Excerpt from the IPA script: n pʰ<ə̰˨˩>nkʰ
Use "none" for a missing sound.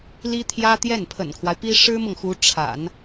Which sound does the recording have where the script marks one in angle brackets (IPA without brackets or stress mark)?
ə̰˨˩